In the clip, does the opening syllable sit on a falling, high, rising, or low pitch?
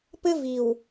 high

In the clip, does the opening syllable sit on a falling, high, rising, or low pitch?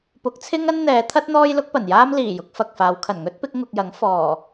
rising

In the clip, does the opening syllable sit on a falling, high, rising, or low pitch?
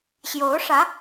rising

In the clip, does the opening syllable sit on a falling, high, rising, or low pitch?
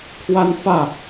high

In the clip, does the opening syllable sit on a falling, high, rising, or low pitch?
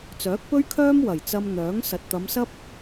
rising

